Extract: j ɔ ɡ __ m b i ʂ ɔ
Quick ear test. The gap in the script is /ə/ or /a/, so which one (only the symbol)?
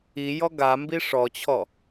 a